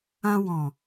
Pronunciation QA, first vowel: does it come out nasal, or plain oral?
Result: nasal